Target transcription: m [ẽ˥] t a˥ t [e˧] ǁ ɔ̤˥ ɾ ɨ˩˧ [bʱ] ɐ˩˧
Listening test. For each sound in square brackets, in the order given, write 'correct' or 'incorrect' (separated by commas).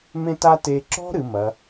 correct, correct, incorrect